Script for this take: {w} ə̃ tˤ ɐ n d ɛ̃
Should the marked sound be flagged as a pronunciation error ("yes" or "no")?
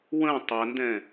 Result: no